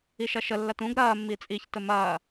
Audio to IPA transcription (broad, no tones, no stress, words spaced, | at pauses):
iʃɐʃəlːɐt ũɡ ɾɐːmːi t͡sʼiçtə mɐː